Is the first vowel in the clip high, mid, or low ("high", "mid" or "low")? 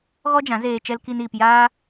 mid